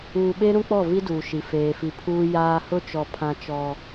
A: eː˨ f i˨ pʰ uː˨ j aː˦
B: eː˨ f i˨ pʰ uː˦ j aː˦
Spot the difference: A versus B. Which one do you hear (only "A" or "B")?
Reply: B